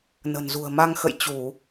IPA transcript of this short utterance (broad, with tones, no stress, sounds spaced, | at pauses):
n ə̤˨˩ n z ṳ˨˩ ə̯ m a˧ ŋ x ə̰˧˨ j t͡ɕ u˧˩˨